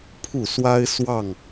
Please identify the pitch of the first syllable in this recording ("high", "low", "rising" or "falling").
falling